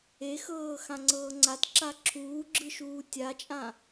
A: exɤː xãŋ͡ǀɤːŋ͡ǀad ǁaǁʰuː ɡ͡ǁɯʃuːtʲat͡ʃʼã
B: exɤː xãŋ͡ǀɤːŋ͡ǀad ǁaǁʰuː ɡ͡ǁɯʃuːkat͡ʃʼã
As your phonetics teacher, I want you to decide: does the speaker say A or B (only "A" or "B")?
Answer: A